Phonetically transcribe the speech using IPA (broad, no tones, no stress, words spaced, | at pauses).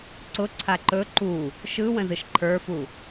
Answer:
ǀʊǀʰa ǃɵ ǃu | ʃɯwə̃zɯʃ ǃʰə˞fu